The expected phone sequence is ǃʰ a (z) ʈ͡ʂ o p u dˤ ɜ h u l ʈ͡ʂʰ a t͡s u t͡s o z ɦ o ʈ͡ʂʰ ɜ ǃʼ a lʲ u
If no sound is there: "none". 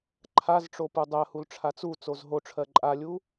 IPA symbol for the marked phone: z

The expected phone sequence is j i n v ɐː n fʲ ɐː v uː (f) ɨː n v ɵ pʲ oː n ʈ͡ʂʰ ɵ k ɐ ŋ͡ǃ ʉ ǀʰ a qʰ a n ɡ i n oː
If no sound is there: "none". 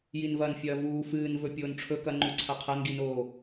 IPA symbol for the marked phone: f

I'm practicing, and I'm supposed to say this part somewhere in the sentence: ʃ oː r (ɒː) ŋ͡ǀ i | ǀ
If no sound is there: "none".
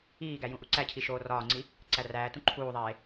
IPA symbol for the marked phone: ɒː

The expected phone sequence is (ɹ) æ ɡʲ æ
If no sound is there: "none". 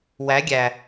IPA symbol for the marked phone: w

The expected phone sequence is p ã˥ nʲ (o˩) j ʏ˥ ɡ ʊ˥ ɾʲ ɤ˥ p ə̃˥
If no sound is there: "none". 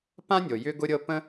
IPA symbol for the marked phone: o˩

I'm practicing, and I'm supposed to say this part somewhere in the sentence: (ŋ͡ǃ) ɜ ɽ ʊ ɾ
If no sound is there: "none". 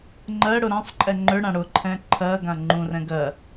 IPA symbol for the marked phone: ŋ͡ǃ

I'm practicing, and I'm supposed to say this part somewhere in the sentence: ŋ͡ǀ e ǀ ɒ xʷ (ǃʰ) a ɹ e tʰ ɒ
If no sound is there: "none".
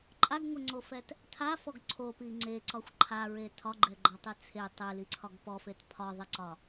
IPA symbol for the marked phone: ǃʰ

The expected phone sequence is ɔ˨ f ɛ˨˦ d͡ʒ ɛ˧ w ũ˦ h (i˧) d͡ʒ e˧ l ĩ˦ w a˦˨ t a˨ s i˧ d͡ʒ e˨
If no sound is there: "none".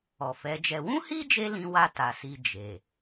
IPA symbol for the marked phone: i˦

